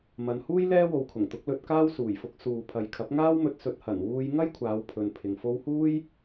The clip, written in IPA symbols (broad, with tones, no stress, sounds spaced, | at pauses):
m ɐ˨˧ n h uː˥ j l ɛː˥ w o˨ w kʰ ʊ˨˩ ŋ t̪ ʊ˨˥ k̚ l ɵ˧ t̚ k aː˥ w s uː˨˩ j f ʊ˧ k̚ s uː˨ pʰ ɐ˨ j kʰ ɐ˨˥ p̚ ŋ aː˥ w m ɵ˧ t̚ s ɵ˨˥ t̚ h ɐ˨˩ n w uː˧ j ŋ ɐ˥ j kʷʰ aː˨˧ w pʰ ɵ˨ n pʰ ɪ˨ ŋ f o˧ w h uː˥ j